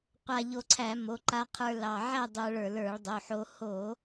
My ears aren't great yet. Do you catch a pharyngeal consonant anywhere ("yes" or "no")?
yes